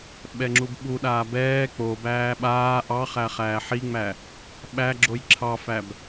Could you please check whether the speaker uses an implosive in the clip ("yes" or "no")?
yes